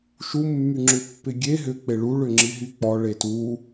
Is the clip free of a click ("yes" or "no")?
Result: no